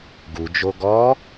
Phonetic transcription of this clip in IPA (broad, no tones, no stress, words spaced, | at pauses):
ɡud͡ʒo ɡɔ